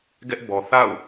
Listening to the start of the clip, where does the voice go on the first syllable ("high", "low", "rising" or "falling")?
high